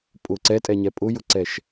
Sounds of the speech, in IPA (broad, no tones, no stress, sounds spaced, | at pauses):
pʼ ʊ ǀ ɛ tʼ ɛ ɲ ɛ pʼ ʊ j ʊ ǀ ɛ ʃ